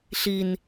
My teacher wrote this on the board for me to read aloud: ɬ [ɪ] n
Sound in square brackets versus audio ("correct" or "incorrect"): incorrect